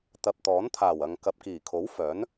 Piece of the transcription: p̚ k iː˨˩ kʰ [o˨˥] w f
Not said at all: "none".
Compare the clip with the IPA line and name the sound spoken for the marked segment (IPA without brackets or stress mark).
o˨˥